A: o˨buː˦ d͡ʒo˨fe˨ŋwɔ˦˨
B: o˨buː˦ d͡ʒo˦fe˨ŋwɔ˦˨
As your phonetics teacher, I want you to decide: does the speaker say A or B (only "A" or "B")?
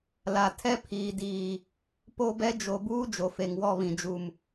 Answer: A